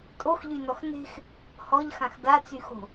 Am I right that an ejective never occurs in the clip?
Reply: no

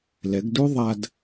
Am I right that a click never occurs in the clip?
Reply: yes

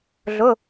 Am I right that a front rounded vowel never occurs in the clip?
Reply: yes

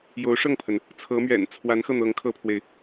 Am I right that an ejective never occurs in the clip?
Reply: yes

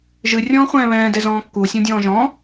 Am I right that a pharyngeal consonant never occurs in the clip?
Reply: yes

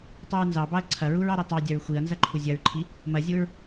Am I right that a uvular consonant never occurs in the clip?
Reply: yes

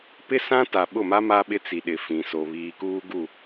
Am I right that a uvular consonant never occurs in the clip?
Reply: yes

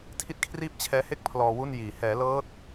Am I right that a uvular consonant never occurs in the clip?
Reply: yes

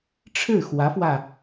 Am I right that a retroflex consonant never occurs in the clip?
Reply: no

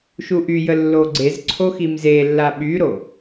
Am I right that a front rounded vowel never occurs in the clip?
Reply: no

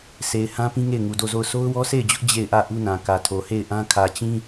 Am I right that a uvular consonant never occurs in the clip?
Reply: yes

